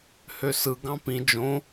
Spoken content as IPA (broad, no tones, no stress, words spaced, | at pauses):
høsɯ ɡɑ̃pĩ d͡ʒõ